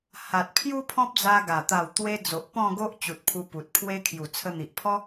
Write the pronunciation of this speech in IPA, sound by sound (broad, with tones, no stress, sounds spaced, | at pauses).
h a˨ t̚ pʰ j u˦ pʰ ɔ̃˦ p̚ d͡z a˧ ɡ a˨˩ t̪ a˨˩ w t̪ w e˧ d͡z o˨ ʔ p ɔ̃˥˧ ɡ o˦ ʔ t͡ɕ u˨ t̚ pʰ u˧ p u˨ t̚ pʰ w e˦ kʰ j u˨˩ t͡sʰ ə˧ n̪ i˨ ʔ pʰ ɔ˦